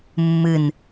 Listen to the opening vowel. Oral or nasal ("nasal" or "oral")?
oral